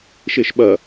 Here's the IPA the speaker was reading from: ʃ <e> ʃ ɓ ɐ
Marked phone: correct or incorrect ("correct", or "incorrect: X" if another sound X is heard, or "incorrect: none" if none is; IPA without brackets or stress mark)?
correct